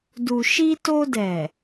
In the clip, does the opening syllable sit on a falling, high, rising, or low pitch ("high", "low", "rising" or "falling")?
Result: low